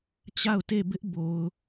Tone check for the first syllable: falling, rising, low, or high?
falling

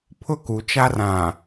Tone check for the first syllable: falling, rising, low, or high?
high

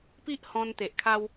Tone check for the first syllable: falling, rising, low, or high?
high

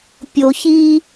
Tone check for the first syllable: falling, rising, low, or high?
low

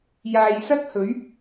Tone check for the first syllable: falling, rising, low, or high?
low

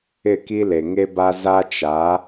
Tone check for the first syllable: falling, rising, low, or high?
falling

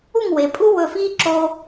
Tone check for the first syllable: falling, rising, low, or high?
falling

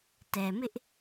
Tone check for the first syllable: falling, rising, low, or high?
low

